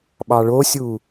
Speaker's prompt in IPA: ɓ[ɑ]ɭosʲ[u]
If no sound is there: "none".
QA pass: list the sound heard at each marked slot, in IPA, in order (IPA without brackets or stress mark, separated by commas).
ɑ, u